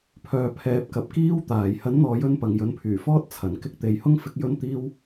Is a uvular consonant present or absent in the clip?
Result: absent